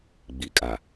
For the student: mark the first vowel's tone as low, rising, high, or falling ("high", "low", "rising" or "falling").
low